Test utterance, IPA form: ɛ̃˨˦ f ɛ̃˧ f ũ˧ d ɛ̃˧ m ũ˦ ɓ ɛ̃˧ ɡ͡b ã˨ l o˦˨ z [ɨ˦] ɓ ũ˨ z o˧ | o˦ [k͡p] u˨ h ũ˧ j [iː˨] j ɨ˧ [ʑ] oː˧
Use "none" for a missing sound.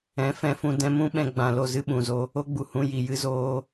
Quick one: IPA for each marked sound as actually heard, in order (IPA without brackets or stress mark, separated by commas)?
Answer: ɨ˦, ɡ͡b, i˨, z